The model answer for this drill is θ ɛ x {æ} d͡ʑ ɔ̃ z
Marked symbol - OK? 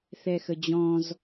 no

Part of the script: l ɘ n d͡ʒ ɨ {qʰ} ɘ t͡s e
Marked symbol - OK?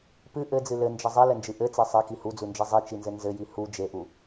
no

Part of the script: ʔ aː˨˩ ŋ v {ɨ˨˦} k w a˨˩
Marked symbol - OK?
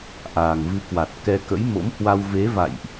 yes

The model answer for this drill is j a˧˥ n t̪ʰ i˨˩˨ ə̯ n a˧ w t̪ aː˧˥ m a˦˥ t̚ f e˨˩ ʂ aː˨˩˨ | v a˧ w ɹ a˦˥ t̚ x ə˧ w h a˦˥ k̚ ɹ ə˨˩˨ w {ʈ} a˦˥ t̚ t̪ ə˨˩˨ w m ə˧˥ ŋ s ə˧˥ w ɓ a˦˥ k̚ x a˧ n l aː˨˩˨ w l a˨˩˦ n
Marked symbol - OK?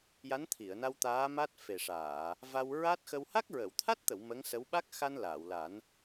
no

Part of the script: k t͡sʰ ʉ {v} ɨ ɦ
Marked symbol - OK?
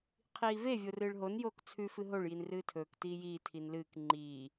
no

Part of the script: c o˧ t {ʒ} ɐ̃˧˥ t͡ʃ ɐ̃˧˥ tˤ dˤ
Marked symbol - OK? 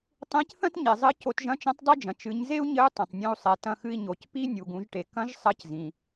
yes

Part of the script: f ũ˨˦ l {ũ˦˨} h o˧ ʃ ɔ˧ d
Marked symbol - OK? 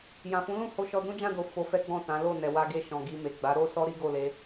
yes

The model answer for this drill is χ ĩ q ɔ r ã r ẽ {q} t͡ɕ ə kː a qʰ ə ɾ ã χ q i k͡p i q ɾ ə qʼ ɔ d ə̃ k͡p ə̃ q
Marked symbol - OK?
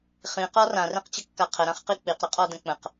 yes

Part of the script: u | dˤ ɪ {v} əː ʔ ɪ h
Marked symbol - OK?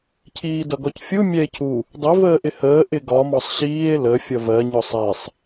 yes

